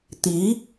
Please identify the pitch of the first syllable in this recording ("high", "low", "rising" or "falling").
rising